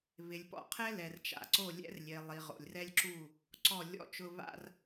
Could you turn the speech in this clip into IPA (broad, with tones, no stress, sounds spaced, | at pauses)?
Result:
β ɪ˨ lʲ p ɔ̰˨ qʰ ɛ˦ l ɛ˨ r t͡ʃ a̰˨ ǀ o˦˨ lʲ ɛ̰˦ r lʲ e˨ lˠ i˨ ʁ o̰˨ lʲ r ɛ˦ lʲ ǁ u˦˨ | ǀ ɔ˦˨ lʲ ɔ̰˦˨ t͡ʃ ʊ˦ β a̰˦ r